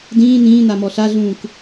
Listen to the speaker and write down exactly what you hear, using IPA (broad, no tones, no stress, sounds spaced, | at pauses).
d ĩː n̪ ĩː n̪ a m ɔ ɬ a ɮ ũː k